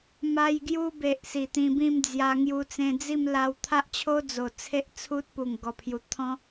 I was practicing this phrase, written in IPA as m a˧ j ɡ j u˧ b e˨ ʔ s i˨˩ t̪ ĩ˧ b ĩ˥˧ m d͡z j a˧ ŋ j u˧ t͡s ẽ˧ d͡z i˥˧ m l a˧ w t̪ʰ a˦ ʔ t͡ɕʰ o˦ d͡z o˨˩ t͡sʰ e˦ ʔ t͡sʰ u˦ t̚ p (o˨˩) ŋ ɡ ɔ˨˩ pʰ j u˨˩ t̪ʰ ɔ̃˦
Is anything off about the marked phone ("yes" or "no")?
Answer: yes